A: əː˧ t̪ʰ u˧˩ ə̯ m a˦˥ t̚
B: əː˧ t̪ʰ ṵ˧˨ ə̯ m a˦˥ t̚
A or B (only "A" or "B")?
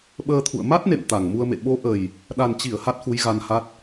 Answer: B